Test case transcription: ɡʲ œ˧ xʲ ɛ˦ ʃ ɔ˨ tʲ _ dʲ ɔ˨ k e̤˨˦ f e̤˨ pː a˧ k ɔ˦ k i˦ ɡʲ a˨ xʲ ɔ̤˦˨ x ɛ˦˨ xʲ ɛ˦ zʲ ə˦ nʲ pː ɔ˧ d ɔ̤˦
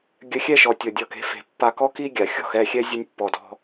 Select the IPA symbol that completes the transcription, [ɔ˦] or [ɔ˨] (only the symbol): ɔ˨